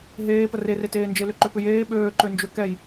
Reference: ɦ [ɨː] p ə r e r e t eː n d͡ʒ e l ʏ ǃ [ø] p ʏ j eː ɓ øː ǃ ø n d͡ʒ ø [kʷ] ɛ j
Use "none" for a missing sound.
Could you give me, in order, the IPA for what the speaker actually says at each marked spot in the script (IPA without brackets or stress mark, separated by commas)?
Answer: eː, ø, k